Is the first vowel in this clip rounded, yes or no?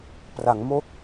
no